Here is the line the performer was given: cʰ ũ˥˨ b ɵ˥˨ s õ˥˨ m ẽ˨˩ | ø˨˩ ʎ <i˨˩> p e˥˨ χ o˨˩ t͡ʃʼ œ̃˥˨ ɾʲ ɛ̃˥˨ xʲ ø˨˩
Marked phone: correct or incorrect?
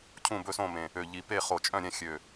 correct